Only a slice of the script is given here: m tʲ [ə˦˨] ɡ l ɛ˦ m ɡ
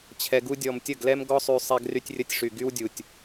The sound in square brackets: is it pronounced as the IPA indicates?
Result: yes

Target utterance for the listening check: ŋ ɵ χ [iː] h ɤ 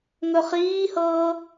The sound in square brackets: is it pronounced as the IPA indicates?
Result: yes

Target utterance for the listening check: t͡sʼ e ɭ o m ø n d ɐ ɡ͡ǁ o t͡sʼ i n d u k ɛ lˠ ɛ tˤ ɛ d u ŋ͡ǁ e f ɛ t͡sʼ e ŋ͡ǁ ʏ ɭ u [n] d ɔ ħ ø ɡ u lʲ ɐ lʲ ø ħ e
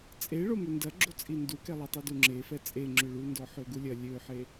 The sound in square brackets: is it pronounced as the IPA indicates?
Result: yes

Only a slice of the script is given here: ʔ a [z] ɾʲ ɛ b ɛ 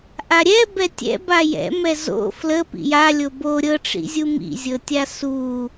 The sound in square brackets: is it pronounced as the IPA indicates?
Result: no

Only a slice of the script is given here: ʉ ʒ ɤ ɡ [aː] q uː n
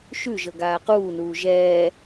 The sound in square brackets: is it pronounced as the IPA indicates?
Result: yes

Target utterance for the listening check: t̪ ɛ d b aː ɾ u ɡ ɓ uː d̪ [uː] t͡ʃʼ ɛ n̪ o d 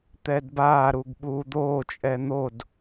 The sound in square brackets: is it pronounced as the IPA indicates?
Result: no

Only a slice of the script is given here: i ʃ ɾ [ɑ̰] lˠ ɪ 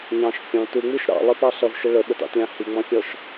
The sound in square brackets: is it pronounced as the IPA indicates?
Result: yes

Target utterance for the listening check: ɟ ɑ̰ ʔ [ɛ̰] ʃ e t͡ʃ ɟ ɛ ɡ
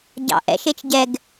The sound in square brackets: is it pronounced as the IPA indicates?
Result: yes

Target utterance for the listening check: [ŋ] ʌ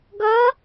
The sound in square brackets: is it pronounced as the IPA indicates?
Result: no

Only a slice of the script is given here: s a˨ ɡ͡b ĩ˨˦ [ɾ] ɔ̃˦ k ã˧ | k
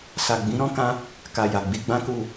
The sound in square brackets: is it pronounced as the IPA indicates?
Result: yes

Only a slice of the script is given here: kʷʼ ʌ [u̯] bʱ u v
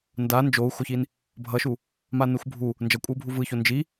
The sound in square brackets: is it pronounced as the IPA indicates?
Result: yes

